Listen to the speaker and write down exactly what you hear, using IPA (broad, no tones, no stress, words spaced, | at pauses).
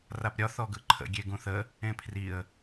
rapɾʲɒ θɔɡɯǃʰə̰ ɡʲeɡũθə | ẽpʰriə̯